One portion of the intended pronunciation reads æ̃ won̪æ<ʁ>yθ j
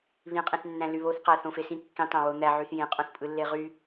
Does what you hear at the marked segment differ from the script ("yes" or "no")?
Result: yes